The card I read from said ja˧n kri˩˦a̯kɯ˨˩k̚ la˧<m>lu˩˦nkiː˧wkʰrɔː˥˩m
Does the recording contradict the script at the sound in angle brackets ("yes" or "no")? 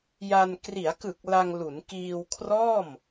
yes